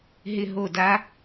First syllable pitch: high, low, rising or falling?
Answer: falling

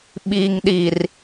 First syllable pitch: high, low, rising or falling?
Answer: low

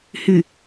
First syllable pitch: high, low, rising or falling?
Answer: low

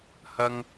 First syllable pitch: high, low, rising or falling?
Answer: high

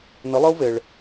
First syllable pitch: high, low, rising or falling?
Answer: rising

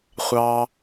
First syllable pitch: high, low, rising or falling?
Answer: low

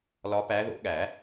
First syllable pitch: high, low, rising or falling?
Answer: rising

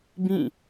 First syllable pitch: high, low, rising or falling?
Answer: falling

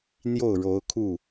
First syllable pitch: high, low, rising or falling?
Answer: falling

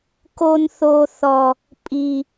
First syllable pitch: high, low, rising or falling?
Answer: high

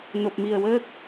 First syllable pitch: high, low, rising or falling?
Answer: low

